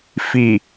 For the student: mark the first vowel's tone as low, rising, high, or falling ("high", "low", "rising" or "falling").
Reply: low